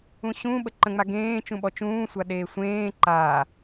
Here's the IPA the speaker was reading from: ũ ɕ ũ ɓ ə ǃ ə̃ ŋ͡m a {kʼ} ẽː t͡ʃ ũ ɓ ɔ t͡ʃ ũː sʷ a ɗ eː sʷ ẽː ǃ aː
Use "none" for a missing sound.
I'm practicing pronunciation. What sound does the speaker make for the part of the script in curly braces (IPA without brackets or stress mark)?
ɡ